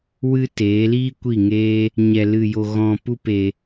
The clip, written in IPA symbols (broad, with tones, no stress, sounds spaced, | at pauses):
w ɨ˦ t eː˨˦ l iː˦ kʷ i˦˨ ŋ eː˦ | ɲ ɛ˧ l ɨ˧ j o˧ ɣ ɔ̃˧ p u˦ p e˧